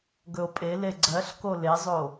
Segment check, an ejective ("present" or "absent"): present